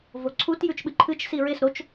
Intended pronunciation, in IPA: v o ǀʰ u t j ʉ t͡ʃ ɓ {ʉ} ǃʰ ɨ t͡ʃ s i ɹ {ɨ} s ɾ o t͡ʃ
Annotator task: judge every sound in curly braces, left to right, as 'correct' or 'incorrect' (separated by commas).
incorrect, incorrect